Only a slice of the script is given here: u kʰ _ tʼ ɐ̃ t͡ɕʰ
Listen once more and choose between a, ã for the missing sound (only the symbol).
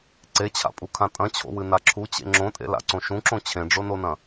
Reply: ã